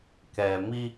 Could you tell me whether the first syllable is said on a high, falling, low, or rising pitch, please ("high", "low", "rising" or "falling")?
low